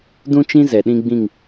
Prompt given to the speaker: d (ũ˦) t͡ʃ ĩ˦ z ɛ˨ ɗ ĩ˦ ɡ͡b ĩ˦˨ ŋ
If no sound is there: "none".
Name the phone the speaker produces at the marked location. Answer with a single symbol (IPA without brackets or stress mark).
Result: ũ˦